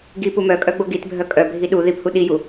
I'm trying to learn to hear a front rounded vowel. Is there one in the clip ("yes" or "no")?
yes